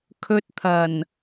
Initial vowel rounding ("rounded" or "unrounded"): rounded